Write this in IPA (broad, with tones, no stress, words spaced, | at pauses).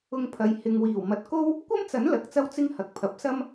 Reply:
ʊ˧ŋpʰɐ˨˧j hɪ˨ŋ wiː˨˩wmɐ˨t̚ ko˥w | kʷɐ˥mt͡sɐ˨˥n lɐ˨˥k̚t͡sɐ˥wt͡sɪ˥ŋ hɐ˨˥k̚pʰɐ˨˥p̚sɐ˥m